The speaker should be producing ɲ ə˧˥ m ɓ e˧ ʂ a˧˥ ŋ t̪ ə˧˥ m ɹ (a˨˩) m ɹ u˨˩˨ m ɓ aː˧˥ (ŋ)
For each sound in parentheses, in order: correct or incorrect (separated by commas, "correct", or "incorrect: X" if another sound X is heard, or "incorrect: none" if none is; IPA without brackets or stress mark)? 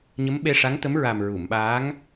correct, correct